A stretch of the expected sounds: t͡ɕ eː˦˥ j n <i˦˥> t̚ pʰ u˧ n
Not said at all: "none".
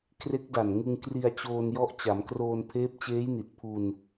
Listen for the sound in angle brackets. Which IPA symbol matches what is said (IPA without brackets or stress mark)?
i˨˩